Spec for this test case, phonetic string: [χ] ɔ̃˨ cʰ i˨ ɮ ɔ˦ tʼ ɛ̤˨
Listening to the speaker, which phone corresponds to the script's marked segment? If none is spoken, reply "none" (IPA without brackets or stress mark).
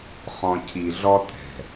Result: χ